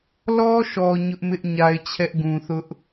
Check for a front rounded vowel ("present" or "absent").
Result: absent